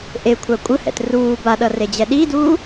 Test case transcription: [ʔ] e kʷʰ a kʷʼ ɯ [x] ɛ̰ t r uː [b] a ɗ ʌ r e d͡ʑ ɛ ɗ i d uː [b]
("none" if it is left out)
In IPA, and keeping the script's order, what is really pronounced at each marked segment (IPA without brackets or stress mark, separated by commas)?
ʔ, h, b, none